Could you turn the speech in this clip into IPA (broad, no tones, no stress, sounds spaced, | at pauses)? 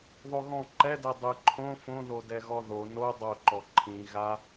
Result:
ðˤ o ɣ ɔ̃ ǃ ɛ d ɛ dˤ ɨ ǃʰ õ f õ ð o d ɛ ɣ ɔ ð o n o dˤ o ǃ ɔ ǃʰ ĩ ɣ a